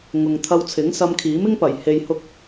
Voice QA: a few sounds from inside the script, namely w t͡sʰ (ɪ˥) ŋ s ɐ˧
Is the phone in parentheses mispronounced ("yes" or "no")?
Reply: yes